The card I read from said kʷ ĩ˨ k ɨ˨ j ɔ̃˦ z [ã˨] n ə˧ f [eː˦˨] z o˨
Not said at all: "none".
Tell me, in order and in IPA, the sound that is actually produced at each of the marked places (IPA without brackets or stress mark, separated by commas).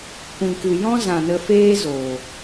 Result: ã˨, eː˦